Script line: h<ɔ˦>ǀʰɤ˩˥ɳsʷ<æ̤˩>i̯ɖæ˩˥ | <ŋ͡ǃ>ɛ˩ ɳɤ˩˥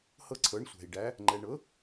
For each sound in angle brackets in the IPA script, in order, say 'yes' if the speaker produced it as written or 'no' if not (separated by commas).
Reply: no, yes, yes